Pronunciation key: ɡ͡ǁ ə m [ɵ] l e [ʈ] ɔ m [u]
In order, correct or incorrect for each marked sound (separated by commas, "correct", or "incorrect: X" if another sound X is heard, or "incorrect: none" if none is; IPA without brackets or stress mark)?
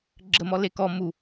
incorrect: ɔ, incorrect: k, correct